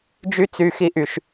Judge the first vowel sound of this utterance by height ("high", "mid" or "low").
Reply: high